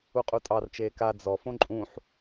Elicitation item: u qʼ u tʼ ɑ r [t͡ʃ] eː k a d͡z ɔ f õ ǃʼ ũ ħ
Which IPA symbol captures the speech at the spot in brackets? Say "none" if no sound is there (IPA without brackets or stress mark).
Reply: t͡ʃ